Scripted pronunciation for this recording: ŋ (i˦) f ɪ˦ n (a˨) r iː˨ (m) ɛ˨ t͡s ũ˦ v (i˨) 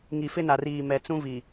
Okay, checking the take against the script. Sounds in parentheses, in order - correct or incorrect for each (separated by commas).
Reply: incorrect, correct, correct, correct